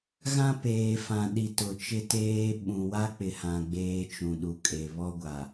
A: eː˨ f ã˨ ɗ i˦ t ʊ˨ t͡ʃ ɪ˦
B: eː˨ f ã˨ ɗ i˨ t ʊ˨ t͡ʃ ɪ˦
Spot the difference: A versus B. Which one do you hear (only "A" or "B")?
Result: B